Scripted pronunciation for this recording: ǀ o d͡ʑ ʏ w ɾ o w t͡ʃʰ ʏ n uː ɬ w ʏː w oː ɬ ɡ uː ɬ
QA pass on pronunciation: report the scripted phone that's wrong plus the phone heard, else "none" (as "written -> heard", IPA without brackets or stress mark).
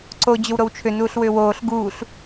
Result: none